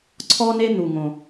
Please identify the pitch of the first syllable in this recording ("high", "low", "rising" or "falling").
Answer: high